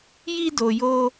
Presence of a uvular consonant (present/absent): absent